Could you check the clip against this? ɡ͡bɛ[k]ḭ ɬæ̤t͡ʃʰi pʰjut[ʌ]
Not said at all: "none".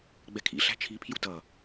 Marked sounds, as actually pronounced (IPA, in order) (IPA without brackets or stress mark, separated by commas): kʰ, ʌ